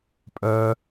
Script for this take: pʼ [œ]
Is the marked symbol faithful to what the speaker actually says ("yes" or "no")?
yes